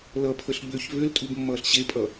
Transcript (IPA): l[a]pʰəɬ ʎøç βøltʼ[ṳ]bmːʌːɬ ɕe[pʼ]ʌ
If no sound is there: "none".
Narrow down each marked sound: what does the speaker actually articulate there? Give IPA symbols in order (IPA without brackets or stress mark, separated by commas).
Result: ʌ, u, pʼ